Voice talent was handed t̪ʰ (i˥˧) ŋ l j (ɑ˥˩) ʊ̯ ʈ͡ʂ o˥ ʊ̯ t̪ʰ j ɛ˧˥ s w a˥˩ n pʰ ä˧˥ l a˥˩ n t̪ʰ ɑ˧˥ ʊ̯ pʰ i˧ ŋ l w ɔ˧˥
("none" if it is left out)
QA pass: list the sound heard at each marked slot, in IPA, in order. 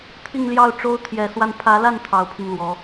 i˥˧, ɑ˥˩

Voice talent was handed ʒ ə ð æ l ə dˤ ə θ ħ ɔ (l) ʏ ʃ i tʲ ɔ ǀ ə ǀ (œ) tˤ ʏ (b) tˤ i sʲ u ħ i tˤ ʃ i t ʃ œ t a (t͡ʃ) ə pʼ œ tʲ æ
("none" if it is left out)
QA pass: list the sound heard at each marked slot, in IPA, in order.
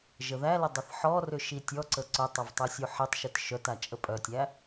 r, œ, v, t͡ʃʼ

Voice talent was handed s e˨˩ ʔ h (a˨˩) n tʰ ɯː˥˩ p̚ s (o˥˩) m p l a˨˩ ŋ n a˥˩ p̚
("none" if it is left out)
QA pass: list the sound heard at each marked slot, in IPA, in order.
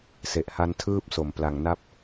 a˦˥, o˨˩

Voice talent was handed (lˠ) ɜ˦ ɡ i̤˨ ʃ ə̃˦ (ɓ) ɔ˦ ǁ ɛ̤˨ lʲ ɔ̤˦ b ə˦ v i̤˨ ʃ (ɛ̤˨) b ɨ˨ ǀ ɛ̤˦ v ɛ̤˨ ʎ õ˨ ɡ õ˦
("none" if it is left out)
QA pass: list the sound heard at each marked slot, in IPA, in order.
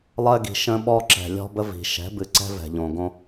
lˠ, ɓ, ɛ̤˨˦

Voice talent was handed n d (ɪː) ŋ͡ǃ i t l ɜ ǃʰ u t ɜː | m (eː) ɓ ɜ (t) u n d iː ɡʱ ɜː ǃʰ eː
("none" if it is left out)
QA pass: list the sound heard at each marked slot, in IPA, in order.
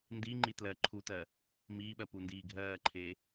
iː, iː, p

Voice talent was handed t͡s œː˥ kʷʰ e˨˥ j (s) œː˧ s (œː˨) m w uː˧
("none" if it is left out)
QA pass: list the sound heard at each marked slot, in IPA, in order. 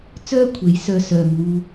s, œː˨

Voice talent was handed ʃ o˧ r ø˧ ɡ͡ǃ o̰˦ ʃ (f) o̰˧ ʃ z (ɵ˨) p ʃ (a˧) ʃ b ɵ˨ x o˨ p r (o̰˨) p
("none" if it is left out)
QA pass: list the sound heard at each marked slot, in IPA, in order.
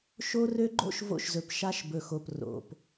v, ɵ˨, a˧, o̰˨

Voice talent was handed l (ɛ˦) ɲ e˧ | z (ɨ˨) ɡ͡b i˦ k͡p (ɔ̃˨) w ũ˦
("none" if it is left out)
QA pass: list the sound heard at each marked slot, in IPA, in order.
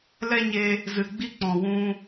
ɛ˦, ɨ˨, ɔ̃˨

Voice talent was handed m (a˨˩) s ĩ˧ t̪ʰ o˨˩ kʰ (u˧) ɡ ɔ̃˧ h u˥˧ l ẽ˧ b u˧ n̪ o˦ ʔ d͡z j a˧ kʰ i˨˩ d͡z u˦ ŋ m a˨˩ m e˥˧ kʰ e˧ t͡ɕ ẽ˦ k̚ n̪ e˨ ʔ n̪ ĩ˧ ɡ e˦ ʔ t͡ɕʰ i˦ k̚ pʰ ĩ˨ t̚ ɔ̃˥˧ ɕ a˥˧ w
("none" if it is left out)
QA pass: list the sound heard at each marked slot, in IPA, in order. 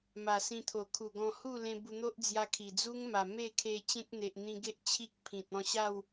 a˨˩, u˨˩

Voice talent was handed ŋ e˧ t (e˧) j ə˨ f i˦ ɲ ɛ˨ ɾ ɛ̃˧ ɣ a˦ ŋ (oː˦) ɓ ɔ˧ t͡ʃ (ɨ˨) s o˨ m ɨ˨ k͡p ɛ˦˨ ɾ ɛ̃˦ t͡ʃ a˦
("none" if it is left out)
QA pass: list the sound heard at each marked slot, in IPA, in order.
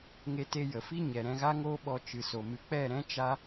e˧, oː˦, ɨ˨

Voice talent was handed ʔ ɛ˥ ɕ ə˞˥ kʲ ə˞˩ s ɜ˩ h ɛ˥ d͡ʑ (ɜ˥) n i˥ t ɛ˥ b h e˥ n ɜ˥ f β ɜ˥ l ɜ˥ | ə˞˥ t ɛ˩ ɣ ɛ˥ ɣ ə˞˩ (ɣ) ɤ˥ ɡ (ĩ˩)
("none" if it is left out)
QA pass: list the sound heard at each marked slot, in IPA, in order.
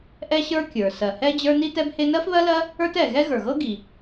ə˞˥, ɣ, i˩

